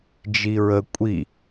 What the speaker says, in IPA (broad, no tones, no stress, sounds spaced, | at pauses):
d͡ʒ i ɹ ə kʷʼ i